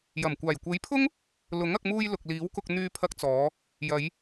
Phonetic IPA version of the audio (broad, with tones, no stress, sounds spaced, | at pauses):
j ɐ˨˩ m kʷ aː˨˩ j kʷ e˨˥ j pʰ ʊ˥ ŋ | l ʊ˨˥ ŋ ɐ˧ k̚ m uː˧ j l ʊ˨ k̚ l iː˨˥ w k ʊ˧ k̚ n̪ yː˧ pʰ ɐ˧ k̚ t͡s ɔː˨˧ | j ɐ˨˧ j